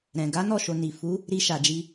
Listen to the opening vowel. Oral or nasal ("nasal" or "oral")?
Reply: nasal